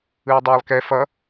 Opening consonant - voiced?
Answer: yes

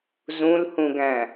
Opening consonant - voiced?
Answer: yes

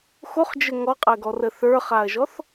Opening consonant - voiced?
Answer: no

